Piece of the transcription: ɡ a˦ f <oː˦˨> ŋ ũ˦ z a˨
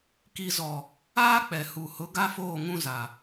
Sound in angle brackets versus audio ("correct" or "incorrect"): correct